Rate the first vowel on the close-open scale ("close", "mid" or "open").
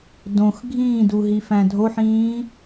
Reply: mid